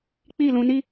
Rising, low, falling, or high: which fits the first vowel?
falling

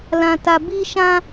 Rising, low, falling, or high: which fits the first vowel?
low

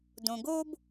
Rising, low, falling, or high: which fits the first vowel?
low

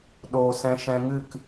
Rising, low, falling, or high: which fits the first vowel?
low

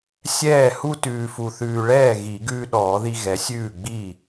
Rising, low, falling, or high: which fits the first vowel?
falling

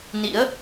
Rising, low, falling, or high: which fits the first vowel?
rising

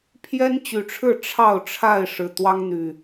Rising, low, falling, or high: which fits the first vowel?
high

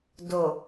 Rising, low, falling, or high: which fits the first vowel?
low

